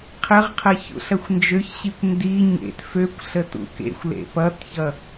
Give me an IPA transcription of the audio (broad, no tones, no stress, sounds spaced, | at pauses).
qʰ ə ʁ qʰ ɐ ç ṵ ɬ ɐ xʷ n d͡ʒ ø ç ɕ i kʷ n d i ɲ ḛ t f ø kʷ ɬ ə t ṵ k ḛ xʷ l ḛ p ʌ t ç ʌ